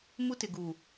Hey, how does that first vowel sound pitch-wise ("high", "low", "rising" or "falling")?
high